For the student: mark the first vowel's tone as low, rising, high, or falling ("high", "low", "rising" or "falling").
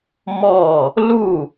falling